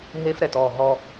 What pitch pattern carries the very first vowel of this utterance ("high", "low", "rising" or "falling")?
high